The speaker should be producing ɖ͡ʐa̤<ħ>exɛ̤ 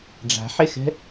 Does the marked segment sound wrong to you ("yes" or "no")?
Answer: no